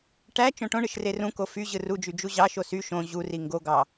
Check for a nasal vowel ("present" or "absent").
present